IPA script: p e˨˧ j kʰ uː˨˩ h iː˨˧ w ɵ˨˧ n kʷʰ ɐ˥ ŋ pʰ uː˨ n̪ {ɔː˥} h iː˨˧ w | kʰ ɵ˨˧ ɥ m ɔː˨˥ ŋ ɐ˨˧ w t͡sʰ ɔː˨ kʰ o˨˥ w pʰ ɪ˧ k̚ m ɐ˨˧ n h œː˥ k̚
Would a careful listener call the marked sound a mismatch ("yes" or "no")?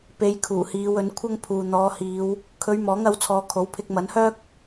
yes